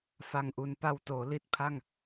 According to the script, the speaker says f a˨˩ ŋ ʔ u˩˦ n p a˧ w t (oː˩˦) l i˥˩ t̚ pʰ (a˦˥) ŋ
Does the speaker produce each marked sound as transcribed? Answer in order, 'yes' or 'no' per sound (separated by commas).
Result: yes, no